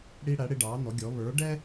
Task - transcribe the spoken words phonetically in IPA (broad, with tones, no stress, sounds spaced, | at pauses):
ɽ i˧ ɽ æ˩˥ ɽ ɪ˧ ɖ ɑ˩˥ n ɔ˩˥ ɡʲ ɔ˩˥ β ə˞˩˥ ɖ ɛ˥